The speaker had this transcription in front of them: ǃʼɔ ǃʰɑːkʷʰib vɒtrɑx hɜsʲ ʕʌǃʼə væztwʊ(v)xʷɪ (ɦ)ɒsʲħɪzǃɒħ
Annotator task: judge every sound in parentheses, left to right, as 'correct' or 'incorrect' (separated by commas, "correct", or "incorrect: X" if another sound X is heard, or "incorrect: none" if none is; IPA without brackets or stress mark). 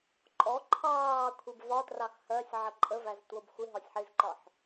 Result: incorrect: b, correct